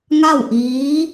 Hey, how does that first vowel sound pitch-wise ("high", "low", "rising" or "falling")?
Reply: falling